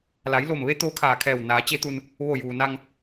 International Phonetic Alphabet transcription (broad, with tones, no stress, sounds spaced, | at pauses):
l a˩˧ j l o˧˩ m ʋ e˧˥ t̪ oː˧˥ kʰ aː˧˩ kʰ ɛː˧˩ w n aː˩˧ t͡ɕ e˧˥ t̪ u˧ n | ʋ o˧˩ j uː˩ n a˧ ŋ